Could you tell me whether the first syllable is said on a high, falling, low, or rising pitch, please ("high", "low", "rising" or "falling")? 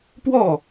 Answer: falling